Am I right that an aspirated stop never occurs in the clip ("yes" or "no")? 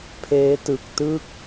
no